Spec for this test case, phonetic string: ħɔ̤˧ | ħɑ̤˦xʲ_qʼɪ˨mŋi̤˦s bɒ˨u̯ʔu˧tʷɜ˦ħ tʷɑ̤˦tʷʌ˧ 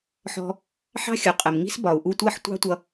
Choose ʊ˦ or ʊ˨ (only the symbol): ʊ˨